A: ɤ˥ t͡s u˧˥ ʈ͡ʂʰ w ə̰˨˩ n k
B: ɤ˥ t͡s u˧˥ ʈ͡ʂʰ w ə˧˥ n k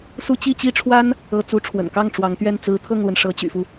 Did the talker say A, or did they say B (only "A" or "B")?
A